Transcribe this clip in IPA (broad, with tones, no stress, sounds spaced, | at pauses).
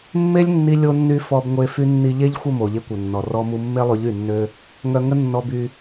mː e˦ lʲ nː i˧ lʲ o˧ nː y˧ f ɔ˧ b ŋʷ e˧ f y˧ nː i˧ ʎ e˦ ʎ xʷ ə˦˨ m o˨ ʎ e˦ kʷ œ˨ nː ɔ˨ r ɔ˧ m u˧ mː e˦ lˠ y˨˦ ʎ y˨ nː ø˦ | ŋ œ˧ ŋ ə˦ nː ɔ˧ b y˧